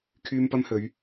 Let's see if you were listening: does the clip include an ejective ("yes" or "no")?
no